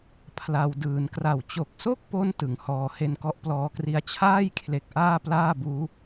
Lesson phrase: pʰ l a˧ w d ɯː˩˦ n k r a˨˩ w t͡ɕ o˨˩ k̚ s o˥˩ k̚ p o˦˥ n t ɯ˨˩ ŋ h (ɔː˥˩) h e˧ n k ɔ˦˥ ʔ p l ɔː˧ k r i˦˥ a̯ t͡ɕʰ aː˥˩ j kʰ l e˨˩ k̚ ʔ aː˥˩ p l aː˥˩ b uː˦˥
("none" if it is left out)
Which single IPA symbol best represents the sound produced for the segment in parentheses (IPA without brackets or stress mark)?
ɔː˧